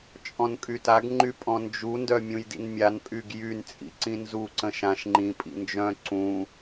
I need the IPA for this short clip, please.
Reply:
t͡ʃʼ ɔ̃ n kʼ y t a ɡ ŋ͡ǃ y pʼ ɔ̃ n d͡ʒ u n d œ mʲ ũ j d ḭ n mʲ a n pʼ y ɡ j y n t͡sʼ ḭ ǀ ĩ n z u ǀ ə̃ ʃ ã ʃ ŋ͡ǃ ĩ pʼ ḭ n d͡ʒ œ̃ ǀ ũ

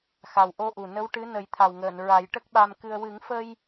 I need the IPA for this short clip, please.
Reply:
x a˨˩ w ʔ o˧ ʔ u˨˩ n ə˧˥ w ʈ ɨ˧˥ n ə˨˩˦ j t̪ʰ a˨˩ w ŋ əː˨˩˨ n ɹ a˨˩˦ j ʈ ə˦˥ k̚ ɓ a˧ m k ɨ˧ ə̯ w ɨ˨˩˦ ŋ f ə˧ j

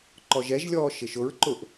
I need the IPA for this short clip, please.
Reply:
ǃ ɔ ʒ ɛ ʒ lʲ ɔː ʃ ɪ ʃ ʊ ɹ ǃ ʊ ʔ

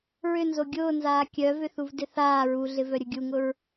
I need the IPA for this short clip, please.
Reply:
ɹ ʏ n z o ɡʲ ʊː n z aː kʲ œ v ʏ θ u v d ɪ θ aː ɹ u ɮ ɪ v œ ɾʲ ʊ ɡʲ u ŋ ʊ ɹ

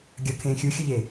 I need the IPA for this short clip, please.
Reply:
ɡʲ ʌ kʰ ẽː xʲ u xʲ ʊ ʎ e

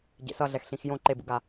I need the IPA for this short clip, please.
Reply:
ɟ ḛ s ʌ ɮ ɛ x ɬ ĩ x j õ ǃ e b ṵ ɡ a

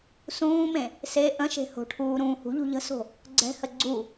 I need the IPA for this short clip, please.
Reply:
s ũː m ẽ | s e ʔ ə̃ ʃ e̤ h o̤ ʈʰ uː ɾ ũː h ṳ ʎ ṳ ʎ ə̤ s o̤ | ɡ͡ǀ ɛ̤ h ə ɡ͡ǀ u

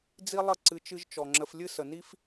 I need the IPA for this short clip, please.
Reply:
d͡z i˦ lˠ ə˦˨ ǀ ɨ˧ t͡ʃ ɨ˦ ʒ t͡ʃ ɔ˨ ŋ͡ǁ ə˧ f lʲ ɨ˦ s ə˨ n i˦ f

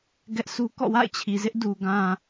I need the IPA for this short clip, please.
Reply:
ɡ ɛ˦ ʔ s u˦ k ɔ̰˦˨ w a̰˦˨ ɪ̯ t͡ɕʰ i˨ z ɪ˦ ʔ d u˨ ɡ ã˨

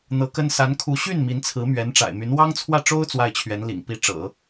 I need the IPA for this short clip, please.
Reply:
n̪ ɤ˧˥ k ə˥ n s a˧˥ n kʰ u˧˥ ɕ y˥˩ n m i˧˥ n t͡sʰ ɹ̩˧˥ m ɥ ɛ˧˥ n ʈ͡ʂ a̰˨˩ ɪ̯ m y˧˥ n w ɑ˥ ŋ t͡sʰ w ä˥˩ ʈ͡ʂ o˥ ʊ̯ t͡s w a˥˩ ɪ̯ t͡ɕʰ ɥ ɛ˧˥ n l ḭ˨˩ ŋ p i˥ ʈ͡ʂ ɤ̰˨˩˦

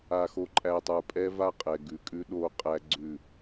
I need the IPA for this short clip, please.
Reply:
a˨ x o˨ ǃʼ æ˨ tˤ ə˞˨ pʼ ɛ˦ v a˦ qʼ ɛ˨ ɡ ʉ˨ kʼ ʉ˦ ɗ o˦ qʼ æ˦ ɡ͡ǀ ʉ˦˨

